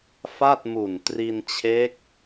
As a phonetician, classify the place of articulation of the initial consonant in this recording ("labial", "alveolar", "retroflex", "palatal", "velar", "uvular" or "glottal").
labial